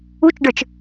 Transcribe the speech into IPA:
ut͡ʃɖə˞t͡ʃ

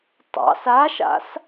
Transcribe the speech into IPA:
tˤɑ̰s aʃa̰s

